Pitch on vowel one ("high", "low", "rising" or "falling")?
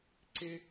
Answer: high